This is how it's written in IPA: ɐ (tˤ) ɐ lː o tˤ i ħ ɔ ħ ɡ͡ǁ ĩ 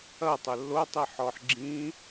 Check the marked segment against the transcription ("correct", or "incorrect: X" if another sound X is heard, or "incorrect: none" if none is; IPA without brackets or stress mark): correct